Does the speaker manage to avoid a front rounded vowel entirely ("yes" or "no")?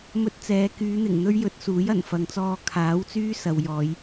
no